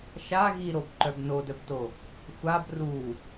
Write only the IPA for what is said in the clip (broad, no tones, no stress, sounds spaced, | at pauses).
ʃ a ɣ i ɾ o b ǃ œ b n o d œ b t o | xʷ a b r u